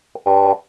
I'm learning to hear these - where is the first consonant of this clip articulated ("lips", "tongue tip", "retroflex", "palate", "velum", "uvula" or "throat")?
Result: throat